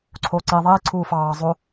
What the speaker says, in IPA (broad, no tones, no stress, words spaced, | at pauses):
ǀʰoːǀi ðˤiː ǀʰuːfɑː zˤo